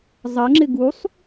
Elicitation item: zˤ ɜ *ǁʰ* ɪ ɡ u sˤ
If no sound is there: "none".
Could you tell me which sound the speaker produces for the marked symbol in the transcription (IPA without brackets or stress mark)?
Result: ŋ͡ǁ